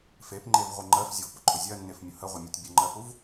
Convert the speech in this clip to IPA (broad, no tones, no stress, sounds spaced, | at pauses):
f e p ŋ͡ǃ e v ʁʷ ə ŋ͡ǃ ɜ f zʲ ʊ v p ʊ ǃʼ ʊ zʲ ɜ nː e f mʲ ʊ h ə ʁʷ ə mʲ ə˞ tʲ bʲ ə ŋ͡ǃ ɜ f u v